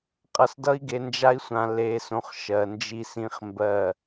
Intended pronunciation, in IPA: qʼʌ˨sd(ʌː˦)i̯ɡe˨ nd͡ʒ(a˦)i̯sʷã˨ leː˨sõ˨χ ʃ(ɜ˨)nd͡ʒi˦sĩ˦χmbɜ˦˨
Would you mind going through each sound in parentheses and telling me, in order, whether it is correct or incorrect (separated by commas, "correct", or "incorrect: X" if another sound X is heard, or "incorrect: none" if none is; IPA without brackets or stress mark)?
incorrect: ʌ˦, correct, correct